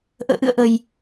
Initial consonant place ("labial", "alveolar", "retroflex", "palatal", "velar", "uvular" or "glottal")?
glottal